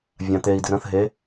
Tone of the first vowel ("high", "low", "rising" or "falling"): low